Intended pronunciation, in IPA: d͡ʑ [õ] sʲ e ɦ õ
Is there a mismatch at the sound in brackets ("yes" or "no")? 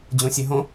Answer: no